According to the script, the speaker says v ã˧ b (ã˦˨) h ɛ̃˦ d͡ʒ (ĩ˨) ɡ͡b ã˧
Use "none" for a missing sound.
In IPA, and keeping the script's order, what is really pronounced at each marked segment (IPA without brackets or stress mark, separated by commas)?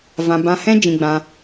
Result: ã˧, ĩ˧